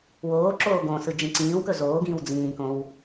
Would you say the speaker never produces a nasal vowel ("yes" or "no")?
no